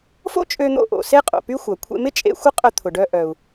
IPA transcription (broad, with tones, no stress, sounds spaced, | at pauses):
f o̰˥ t͡ʃʼ ø˧ n̪ o̰˧ ʔ o̰˩ s e˥ qʼ o̰˩ p y˥ xʷ ɐ˩ kʷʰ ḛ˧ m ɪ˥ t͡ʃʼ ḛ˧ xʷ ɪ˥ qʼ œ˧ t̪ʰ ʊ˩ ɖ œ˧ ʔ œ˩ u̯